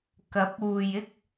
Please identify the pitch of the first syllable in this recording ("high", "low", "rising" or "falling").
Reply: rising